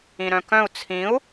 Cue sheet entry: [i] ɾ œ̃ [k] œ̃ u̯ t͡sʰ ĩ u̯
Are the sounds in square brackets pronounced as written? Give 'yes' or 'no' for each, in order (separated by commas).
no, yes